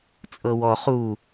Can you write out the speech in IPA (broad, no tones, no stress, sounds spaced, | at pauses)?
t͡sʼ ɤ w ɔ χ u